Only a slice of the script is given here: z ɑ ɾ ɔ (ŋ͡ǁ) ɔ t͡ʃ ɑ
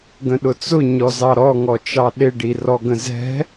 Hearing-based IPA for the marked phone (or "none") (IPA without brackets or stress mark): ŋ